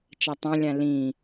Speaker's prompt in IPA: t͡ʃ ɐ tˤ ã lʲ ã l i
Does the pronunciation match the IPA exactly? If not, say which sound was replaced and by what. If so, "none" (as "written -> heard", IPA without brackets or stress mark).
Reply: i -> ĩ